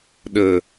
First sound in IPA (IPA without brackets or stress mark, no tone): ɗ